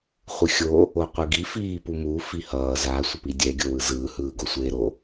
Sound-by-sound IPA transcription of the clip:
χʷɯxʲo | oqʷɯɡi fiːpumu fihʌː za sʷʌpidʲɛ ɡʲowɯzɯː hɯːɡosʷeːɾo

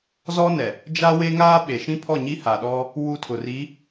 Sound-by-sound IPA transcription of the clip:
zɔ˦nɛ˨ | d͡ʒa˦ we˦ŋaː˦ɓe˨ ʃĩ˦pʰɔ˦˨ɲi˦ ha˨ɗɔ˦ | wu˦˨tʰʊ˨ri˨˦

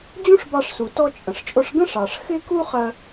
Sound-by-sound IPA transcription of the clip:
d͡ʑũ˥ʂbɑ˧ʂsu˩tɔ˧ t͡ʃʼə̃˩ʂt͡ʃʼʊ˧ʂɡə̃˥ ʂɑ˩ʂ xɪ˥ku˥ χɜ˧

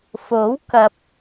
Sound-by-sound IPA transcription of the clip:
fo˨˥w kɐ˨p̚

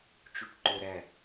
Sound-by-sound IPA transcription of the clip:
t͡ʃuʈǃʊ ɾæ

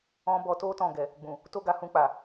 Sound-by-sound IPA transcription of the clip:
ɔ̃˧ bɔ˧to˦ tɔ̃˦˨ɡɛ˨ | ɡ͡bũ˨ | to˦ɡa˧hũ˧k͡pa˨

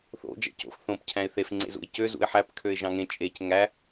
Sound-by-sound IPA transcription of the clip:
θo̰ d͡ʒæ̰co̰x θõp cʰæ̃ɪ̯θef ŋ͡ǀḛzṵɪ̯cø zṵɪ̯ħæp kʰøɪ̯ʒɑ̃ŋẽ t͡ʃʼec ŋæ

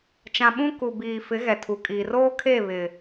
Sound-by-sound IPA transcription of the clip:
t͡ʃã˨ɓũ˦ ku˨biː˨ fɪ˨˦ ɣɛ˨tʰu˨kʼiː˨ roː˦kʰe˦˨ βɪ˨

